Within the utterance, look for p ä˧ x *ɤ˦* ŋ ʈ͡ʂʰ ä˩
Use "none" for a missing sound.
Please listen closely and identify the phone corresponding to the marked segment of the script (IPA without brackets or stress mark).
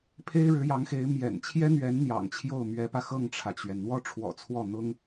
ɤ˥˩